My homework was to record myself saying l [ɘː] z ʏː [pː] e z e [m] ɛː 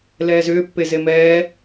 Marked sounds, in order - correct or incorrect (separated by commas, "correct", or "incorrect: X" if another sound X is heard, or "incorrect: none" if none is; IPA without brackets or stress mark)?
incorrect: ɛː, correct, correct